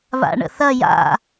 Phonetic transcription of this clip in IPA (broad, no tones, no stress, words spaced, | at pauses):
βa̰ɳə̰θɐ ja̰